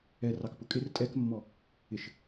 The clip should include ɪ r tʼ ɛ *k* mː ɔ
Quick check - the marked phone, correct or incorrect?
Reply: correct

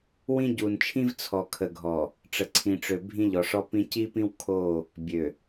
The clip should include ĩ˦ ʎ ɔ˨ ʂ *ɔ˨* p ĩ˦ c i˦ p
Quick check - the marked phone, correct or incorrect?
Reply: incorrect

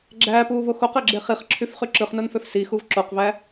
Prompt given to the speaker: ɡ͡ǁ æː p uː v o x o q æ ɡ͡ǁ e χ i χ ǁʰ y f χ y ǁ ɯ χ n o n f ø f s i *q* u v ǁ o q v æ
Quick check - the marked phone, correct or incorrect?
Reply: incorrect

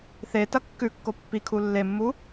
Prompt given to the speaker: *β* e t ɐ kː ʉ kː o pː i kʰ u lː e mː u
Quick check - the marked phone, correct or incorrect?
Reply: incorrect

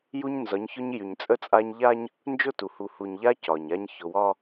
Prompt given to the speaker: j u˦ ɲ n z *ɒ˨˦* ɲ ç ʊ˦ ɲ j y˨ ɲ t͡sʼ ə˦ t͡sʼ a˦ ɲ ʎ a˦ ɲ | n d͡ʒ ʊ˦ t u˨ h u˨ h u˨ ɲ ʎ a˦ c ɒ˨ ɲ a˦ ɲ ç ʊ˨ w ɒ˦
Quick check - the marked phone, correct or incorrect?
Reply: correct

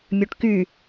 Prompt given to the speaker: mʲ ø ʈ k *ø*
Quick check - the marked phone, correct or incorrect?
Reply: incorrect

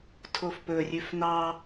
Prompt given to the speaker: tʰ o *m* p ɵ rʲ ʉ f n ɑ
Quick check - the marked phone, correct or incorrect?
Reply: incorrect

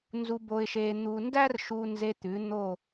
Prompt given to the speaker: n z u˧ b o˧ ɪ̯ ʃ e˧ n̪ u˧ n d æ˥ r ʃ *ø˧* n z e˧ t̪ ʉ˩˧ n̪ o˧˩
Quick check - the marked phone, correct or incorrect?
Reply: incorrect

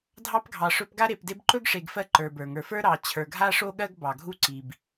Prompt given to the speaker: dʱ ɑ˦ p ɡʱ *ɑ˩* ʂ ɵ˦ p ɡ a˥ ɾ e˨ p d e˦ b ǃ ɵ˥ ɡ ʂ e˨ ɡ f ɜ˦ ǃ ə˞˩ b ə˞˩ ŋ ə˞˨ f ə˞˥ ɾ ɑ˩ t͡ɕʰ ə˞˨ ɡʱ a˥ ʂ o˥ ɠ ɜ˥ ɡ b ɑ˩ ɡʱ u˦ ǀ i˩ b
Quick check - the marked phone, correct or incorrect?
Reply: incorrect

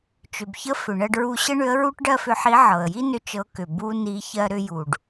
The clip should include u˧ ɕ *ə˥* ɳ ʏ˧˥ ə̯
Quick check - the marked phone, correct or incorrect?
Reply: correct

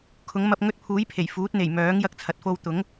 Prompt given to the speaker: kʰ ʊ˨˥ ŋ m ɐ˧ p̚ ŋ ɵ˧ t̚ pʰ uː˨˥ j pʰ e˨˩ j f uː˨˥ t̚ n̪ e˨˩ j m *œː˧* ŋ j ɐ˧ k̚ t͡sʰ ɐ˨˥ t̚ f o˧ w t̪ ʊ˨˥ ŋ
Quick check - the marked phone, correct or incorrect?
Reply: incorrect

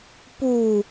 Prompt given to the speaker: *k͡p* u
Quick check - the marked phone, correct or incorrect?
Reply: incorrect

